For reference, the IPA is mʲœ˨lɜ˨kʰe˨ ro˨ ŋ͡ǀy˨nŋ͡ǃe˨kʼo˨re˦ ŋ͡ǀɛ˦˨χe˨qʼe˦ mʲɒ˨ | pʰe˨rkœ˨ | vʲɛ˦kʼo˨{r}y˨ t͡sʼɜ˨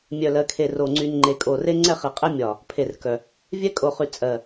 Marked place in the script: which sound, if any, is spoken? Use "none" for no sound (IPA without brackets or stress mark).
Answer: χ